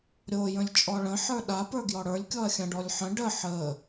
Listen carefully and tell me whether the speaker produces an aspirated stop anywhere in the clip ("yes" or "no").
no